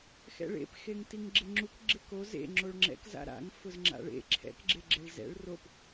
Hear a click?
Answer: yes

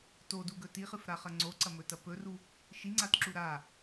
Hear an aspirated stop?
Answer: no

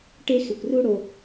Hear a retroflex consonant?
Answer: yes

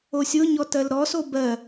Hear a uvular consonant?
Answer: no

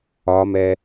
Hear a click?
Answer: no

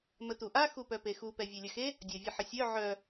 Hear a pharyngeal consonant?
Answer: yes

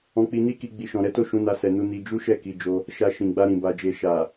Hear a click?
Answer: no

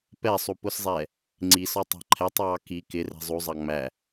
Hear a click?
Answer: yes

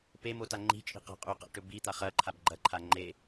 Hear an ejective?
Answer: yes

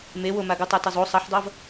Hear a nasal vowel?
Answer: no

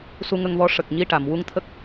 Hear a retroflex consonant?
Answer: yes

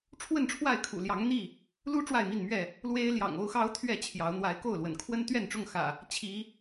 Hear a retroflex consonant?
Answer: yes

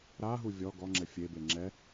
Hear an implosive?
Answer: no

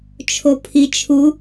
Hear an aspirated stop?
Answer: yes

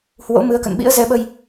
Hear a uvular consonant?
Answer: no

